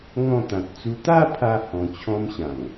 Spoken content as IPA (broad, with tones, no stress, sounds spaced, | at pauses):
ŋ ɔ̃˥˧ t̪ ã˨ t̚ t͡s u˧ t̪ a˥˧ pʰ a˧ h ɔ̃˧ t͡ɕʰ ɔ̃˦ m ɕ ã˨˩ ŋ